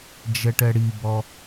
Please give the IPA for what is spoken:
d͡ʒɛʈɛɽibɔ

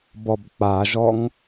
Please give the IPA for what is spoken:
bɔbk͡paʒɔŋ

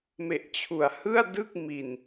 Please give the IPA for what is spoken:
me˨˩ʔt͡ɕʰu˩˦a̯hɯ˥˩a̯ dɯ˥˩k̚mi˨˩n

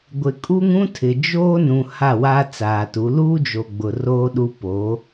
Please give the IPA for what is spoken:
ɡʷɪ˨kʼu˦ŋũ˦tʰɪ˨ d͡ʒoː˦nũ˨ ha˦˨wa˦ t͡saː˨tu˨˦ luː˦d͡ʒo˨ ɡ͡bʊ˨roː˦ ɗu˦ poː˨˦

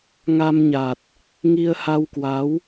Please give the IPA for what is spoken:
ŋa˧mɲa˨˩t̚ | ŋi˧ə̯ha˧wkwa˨˦w

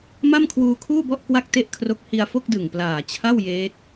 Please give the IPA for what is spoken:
ma˥˩mkʰwuː˧kʰuː˥˩bɔ˥˩ʔ kwa˥˩k̚te˥˩ʔkʰro˦˥k̚ hi˧a̯fo˥˩k̚dɯ˨˩ŋplaː˨˩ t͡ɕʰa˥˩w jeː˦˥t̚

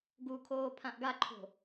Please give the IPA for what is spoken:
ɡukʰoː pʰãʔɡaǃʰo̤

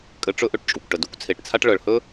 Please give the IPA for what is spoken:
kʼɘ˧ʈ͡ʂɵ˦ʔɵ˧ʈt͡ʃʼu˨kʷ ʈə˨du˨˦kʷt͡sʰe˨ʈt͡sʰa˦ʈ ɭɤ˨ɭhɵ˦

